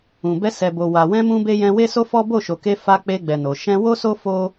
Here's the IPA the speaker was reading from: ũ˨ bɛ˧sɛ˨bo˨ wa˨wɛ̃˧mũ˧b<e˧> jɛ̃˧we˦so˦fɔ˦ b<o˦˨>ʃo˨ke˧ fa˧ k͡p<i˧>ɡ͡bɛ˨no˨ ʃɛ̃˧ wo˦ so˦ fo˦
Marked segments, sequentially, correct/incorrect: correct, correct, incorrect: e˧

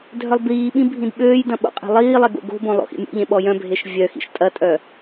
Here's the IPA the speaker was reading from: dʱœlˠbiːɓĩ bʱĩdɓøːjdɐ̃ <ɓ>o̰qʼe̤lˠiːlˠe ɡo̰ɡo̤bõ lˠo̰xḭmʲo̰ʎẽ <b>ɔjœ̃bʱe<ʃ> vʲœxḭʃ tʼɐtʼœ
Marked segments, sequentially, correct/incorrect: correct, incorrect: ɓ, correct

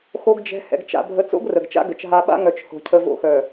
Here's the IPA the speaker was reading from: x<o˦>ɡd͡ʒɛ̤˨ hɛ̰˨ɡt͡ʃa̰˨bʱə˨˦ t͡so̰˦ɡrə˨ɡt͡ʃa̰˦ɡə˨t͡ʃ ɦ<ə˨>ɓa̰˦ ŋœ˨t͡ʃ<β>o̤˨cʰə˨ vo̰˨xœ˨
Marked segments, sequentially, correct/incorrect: incorrect: o˨, incorrect: a˨, incorrect: h

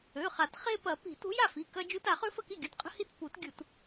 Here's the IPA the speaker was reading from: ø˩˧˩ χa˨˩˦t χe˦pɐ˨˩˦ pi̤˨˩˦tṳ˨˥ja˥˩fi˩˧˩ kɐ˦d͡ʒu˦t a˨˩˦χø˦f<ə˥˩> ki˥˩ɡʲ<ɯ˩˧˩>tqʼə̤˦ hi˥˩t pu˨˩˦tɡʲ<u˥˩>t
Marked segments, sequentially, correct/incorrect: correct, incorrect: u˩˧˩, incorrect: u˨˩˦

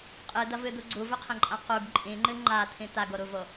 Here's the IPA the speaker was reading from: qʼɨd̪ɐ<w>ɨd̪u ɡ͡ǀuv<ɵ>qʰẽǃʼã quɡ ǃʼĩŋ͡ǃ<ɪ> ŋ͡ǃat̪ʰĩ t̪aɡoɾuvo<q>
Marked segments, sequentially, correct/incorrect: incorrect: v, correct, incorrect: ɨ, incorrect: none

